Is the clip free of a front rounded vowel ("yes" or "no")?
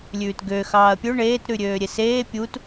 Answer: no